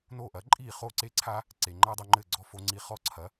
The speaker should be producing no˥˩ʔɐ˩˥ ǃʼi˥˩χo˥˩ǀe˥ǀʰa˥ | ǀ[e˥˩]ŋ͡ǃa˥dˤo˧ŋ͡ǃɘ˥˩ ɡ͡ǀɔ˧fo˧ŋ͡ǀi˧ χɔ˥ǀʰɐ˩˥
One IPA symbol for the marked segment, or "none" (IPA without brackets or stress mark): e˩